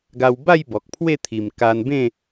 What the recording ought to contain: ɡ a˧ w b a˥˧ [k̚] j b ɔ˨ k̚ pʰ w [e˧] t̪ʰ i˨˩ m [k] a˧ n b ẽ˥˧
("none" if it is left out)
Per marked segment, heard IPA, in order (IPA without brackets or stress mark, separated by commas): none, e˥˧, k